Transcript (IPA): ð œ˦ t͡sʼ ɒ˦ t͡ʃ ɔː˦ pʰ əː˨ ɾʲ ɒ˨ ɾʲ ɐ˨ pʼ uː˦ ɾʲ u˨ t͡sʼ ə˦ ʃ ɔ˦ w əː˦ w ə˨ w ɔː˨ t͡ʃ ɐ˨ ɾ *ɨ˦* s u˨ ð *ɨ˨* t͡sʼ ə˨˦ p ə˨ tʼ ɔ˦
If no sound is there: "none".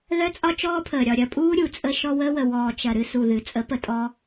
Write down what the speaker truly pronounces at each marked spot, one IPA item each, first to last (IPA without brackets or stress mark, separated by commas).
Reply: ɨ˦, ɨ˨